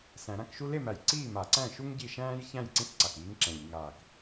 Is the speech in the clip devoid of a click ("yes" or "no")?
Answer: no